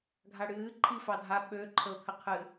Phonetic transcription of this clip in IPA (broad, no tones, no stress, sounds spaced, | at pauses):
ɡʱ a ɽ ɨː ǃʰ i f ɑ dʱ a ɓ ø ǃʰ ə ʊ̯ t̪ʰ ə qʰ ɨ